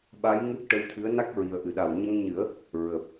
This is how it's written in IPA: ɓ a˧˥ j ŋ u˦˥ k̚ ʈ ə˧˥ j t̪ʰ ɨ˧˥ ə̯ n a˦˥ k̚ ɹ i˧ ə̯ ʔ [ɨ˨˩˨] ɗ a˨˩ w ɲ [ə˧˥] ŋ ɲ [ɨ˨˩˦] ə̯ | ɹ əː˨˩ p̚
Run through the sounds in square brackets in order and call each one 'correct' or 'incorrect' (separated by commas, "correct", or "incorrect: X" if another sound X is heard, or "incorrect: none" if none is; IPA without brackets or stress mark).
correct, incorrect: ə˧, correct